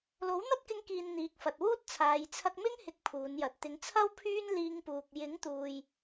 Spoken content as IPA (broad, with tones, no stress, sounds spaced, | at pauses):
l o˨˥ w n̪ ɐ˥ t̚ k ɪ˧ ŋ k iː˨ n n̪ iː˨ k̚ f ɐ˨ t̚ w uː˥ t̚ t͡sʰ aː˨˧ j t͡sʰ ɐ˧ k̚ m ɪ˥ ŋ h ɪ˧ k̚ pʰ uː˨˧ n j ɐ˨ t̚ t̪ ɪ˨˧ ŋ t͡sʰ ɐ˥ w pʰ yː˥ n l iː˧ ŋ p uː˨ k̚ j ɪ˨˥ ŋ t̪ uː˨ j